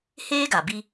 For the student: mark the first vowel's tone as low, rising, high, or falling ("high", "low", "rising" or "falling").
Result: high